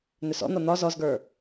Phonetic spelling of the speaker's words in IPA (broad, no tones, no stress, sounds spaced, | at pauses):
n̪ ʏ s ɔ̰ n̪ ɒ n̪ ɒ z ɔ z ɡ ə˞